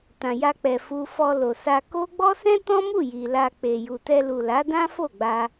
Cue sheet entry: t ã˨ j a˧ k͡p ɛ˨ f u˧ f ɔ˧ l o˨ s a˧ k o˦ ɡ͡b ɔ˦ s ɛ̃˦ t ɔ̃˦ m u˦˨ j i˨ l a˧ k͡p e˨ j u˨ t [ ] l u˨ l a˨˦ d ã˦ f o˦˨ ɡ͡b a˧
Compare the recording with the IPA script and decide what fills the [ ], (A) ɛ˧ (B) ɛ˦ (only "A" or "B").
A